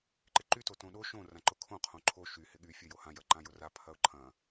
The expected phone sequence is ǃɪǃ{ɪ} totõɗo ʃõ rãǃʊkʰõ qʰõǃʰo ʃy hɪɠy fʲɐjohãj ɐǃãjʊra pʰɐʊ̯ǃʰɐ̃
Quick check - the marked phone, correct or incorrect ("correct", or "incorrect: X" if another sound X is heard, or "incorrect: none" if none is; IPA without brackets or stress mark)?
incorrect: y